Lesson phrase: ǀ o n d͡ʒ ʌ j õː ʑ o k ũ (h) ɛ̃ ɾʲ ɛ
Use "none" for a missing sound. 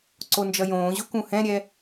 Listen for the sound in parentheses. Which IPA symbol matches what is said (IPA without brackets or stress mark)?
h